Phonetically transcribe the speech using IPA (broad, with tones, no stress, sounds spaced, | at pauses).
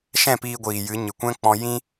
ʃ ɛ̃˦˨ p iː˧ ɡʷ iː˨ j ɨ˨˦ ɲ ɨ˨ kʷ ɛ̃˦ k͡p ɔ̃˧ j ĩ˦